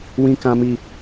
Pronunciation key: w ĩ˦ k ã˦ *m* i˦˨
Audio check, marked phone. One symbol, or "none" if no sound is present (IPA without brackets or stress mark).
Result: m